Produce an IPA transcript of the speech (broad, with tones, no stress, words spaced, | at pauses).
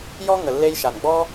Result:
jɔ˦ ŋə˨lːe˧jʃa˨n ɡ͡bɔ˦